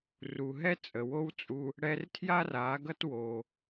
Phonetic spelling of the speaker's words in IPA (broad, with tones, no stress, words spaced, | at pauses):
ru˨ ɦɛ˦t͡sʼə˨wo˦wt͡sʼu˧ | ɽɛ˧rtʰja˦ra˨˦ɡʌ˦t wo˧